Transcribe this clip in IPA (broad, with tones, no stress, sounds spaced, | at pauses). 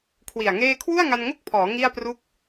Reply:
kʰ w i˨˩ a̯ ŋ eː˥˩ kʰ w u˥˩ a̯ ŋ a˧ n ŋ o˥˩ k̚ pʰ ɔː˩˦ ŋ i˥˩ a̯ p r u˥˩ k̚